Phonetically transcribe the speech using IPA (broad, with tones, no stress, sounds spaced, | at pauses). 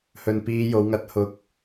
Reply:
h ɵ˨ n p iː˨˧ j o˨˧ w ŋ ɐ˨˥ t̚ h ʊ˨ k̚